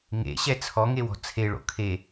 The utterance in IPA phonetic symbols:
ŋ ḛ ɕ ɛ t͡sʰ ɔ ŋ e w ɔ̤ t͡sʰ e ɭ o̰ kʰ e

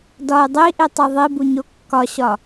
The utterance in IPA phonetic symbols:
d ɒ ɪ̯ dˤ i ʔ i tˤ i ðˤ i b u ɲ o kː ɒ ɕ ɒ

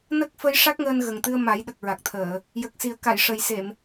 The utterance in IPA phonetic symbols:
n ə˦˥ k̚ f ə˧˥ j ʂ a˦˥ k̚ ŋ əː˧ n ɣ ə˨˩ ŋ t̪ ɨ˧ ə̯ m a˨˩˦ j ɗ ə˨˩ k̚ ɹ a˨˩ k̚ t̪ʰ əː˨˩˨ | j ə˨˩ k̚ s i˨˩˦ ə̯ k a˨˩˨ j ʂ ə˨˩ j s e˨˩˨ m

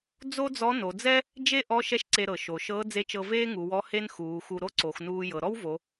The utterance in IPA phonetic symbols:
d͡z o˥ d͡z ɔ˧˥ n o˩˧ d͡z ɛ˥ | d͡ʒ e˥ ʔ ɔ˧˥ ʃ ɛ˥ ʃ ǀ e˧ ɾ ɤ˩ ʃ o˩ ʃ ɤː˧˥ d͡z e˧˥ t͡ʃ ɤ˧ v eː˥ ŋ u˩˧ w ɔ˧˥ h e˥ n x uː˩˧ x u˧ ɾ o˥ ǀ o˩˧ x n uː˧ j ɤ˩˧ ɾ ɔ˥ w v o˩˧

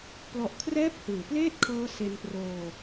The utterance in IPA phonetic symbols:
p l ɔ˨˩ ʔ kʰ r ɛː˥˩ p̚ h ɯː˩˦ p l eː˥˩ t̚ kʰ ɤː˦˥ s e˧ n p r oː˧

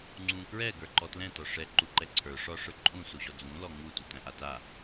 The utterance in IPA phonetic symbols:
ŋ͡ǀ ũ k ɹ ɛ ɡ ə˞ ǃ ɔ t l ɛ̃ t ɒ ʂ ɛ ǃ u ǃ ɛ ǀʰ ə˞ ʂ ɒ ʂ ə˞ ǃʼ ũ s u ʑ ɔ d͡z ũ l ɔ ŋ u t u t æ̃ ʔ a t a

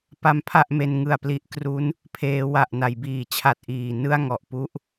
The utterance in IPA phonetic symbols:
p a˦˥ m pʰ a˥˩ ʔ m e˧ n ŋ ɯ˨˩ a̯ p l i˦˥ ʔ k r u˦˥ n | pʰ eː˩˦ w a˨˩ ʔ n a˩˦ j b iː˨˩ t͡ɕʰ a˨˩ t̚ ʔ iː˨˩ n ɯ˥˩ a̯ ŋ ɔ˨˩ ʔ p u˥˩ ʔ

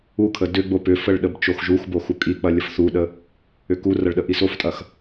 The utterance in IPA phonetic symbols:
u kʰ ə d ʏ ɡ͡b o p ʏ f ə ɭ ɗ ə b t͡ʃ o x ʒ u x b o x u kʼ i k͡p ɐ lʲ ə f θ u ɗ ə | ʏ k u r ɐ ɭ ɗ ə ʔ i s o f tʼ ɐ x

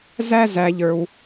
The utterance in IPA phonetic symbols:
z æ˦ z æ˧ ʎ ə˞˧ w

